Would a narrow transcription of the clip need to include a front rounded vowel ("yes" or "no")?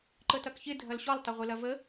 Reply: no